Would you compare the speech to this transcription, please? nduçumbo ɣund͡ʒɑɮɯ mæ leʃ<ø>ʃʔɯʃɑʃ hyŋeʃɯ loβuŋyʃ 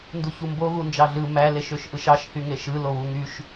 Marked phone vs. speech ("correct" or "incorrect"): correct